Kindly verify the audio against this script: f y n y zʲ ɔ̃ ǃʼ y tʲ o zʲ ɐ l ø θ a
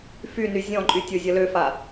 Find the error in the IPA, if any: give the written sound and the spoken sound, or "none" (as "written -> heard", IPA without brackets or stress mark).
θ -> f